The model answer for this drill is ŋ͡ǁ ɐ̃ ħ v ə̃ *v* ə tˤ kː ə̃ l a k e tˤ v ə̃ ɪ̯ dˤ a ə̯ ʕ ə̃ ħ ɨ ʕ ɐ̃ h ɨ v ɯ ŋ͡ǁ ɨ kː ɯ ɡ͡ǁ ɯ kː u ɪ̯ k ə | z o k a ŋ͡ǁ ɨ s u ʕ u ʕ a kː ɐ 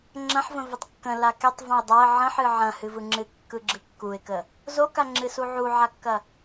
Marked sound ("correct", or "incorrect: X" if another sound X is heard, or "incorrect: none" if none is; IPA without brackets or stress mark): correct